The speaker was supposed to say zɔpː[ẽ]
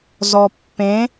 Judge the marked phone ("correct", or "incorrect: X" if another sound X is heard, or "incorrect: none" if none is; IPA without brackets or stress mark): correct